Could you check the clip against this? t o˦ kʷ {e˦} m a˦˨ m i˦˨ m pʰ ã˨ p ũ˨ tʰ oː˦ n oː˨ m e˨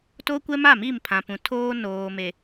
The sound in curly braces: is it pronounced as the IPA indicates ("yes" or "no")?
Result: no